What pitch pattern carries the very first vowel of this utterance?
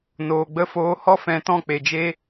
low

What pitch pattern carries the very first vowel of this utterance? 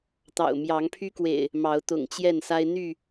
low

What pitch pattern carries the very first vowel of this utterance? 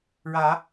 rising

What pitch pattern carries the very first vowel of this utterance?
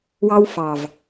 high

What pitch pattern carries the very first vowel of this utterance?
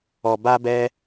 low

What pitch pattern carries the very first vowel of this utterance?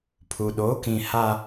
low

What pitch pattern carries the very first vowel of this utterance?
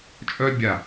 high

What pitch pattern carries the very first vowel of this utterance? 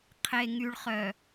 low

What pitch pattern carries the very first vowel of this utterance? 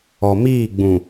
low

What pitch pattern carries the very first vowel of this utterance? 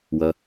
low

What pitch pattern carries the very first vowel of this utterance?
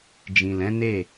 low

